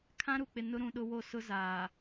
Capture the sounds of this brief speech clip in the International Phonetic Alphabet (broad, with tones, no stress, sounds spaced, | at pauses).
kʰ ã˦ ɾ u˨ k͡p ɪ˨ n ʊ˦ ɾ ũ˨ ɗ ʊ˦ w o˦˨ s ʊ˦ z aː˨